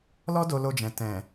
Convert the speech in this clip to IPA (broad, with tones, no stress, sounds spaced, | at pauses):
l ɔ˦ d o˧ l o˧ d͡ʒ ɛ̃˨ t ɛ̃˨